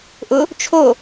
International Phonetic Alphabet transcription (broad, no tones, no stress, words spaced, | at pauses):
ʔʊ | t͡ʃʰo